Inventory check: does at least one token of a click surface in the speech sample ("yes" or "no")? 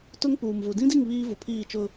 no